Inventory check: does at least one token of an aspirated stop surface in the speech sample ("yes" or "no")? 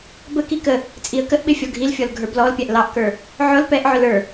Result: no